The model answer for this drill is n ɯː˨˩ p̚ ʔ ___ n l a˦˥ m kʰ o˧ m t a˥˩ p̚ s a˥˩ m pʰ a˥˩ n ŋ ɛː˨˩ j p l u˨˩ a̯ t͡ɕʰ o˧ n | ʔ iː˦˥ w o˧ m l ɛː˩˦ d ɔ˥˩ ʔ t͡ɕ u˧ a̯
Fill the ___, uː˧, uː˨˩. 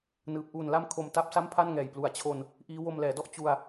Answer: uː˨˩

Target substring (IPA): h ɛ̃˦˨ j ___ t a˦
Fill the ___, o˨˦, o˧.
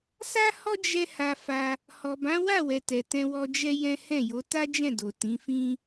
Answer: o˨˦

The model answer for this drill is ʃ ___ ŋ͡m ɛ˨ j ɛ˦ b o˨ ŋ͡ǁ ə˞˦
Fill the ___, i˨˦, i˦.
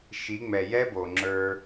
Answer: i˨˦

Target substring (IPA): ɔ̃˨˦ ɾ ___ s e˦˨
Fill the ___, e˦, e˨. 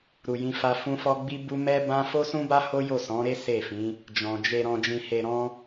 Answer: e˦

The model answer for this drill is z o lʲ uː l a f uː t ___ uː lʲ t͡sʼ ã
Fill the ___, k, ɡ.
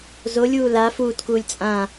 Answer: k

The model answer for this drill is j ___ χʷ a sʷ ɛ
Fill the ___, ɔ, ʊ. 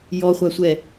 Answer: ɔ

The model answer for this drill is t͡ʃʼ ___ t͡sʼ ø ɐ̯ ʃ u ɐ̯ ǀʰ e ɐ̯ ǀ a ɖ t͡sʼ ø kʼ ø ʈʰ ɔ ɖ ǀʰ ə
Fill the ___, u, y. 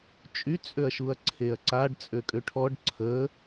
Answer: y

